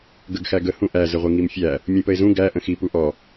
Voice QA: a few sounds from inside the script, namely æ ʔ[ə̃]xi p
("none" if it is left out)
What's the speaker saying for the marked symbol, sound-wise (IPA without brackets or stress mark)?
ə̃